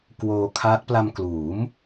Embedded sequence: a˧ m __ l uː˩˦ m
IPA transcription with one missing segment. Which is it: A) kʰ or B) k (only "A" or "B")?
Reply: B